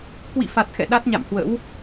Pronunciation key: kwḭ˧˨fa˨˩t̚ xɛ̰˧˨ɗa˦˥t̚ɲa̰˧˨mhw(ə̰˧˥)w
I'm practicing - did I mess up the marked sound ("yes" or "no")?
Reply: no